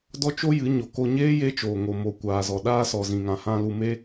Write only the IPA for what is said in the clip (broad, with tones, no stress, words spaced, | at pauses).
dɔ˦t͡ʃo˦jɨ˨˦ɲo˨ ko˧ ɲeː˦je˧t͡ʃoː˨ŋo˨ mo˨kʷaː˨zɔ˨ ɗaː˧sɔ˨zĩ˨ŋã˨ hã˧lu˧me˦